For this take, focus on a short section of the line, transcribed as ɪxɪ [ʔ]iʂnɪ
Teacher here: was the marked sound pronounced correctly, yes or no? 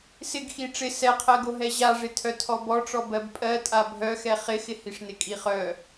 no